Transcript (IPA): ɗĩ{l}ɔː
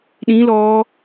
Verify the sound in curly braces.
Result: correct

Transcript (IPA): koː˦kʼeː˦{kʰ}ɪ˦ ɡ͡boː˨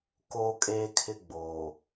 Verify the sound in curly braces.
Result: correct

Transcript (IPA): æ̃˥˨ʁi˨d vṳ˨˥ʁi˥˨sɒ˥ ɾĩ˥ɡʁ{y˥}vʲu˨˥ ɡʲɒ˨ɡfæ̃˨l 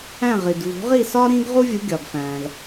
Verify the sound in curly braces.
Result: incorrect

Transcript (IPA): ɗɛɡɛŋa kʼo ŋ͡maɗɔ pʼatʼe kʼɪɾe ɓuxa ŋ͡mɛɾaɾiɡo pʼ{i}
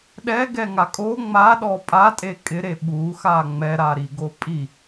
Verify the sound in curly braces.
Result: correct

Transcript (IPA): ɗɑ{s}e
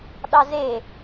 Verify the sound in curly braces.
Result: incorrect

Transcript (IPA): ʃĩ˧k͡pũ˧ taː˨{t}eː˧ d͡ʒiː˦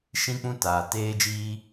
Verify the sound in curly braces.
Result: correct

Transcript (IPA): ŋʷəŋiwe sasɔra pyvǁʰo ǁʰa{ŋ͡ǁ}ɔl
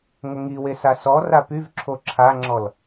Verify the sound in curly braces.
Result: correct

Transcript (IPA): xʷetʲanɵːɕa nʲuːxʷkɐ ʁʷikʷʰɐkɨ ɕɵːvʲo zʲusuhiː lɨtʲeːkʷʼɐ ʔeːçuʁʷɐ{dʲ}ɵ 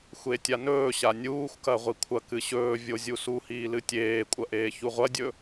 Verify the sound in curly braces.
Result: correct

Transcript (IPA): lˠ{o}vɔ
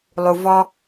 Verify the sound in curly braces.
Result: incorrect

